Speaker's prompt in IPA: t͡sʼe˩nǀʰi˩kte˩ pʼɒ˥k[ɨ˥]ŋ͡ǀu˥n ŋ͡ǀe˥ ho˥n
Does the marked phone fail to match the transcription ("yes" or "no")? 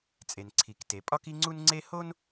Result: yes